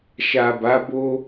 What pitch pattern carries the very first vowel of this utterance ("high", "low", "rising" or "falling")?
low